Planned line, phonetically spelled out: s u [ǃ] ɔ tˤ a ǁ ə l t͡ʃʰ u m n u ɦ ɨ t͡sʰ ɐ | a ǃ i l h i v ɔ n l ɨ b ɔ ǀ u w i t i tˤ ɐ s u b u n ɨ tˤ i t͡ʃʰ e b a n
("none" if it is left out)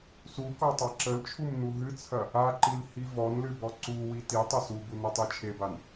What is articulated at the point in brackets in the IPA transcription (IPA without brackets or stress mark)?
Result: k